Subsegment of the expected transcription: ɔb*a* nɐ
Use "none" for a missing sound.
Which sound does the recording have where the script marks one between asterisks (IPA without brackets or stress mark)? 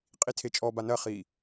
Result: a